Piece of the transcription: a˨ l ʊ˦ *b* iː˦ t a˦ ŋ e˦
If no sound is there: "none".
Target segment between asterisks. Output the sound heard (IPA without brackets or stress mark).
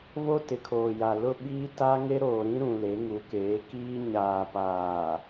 ɓ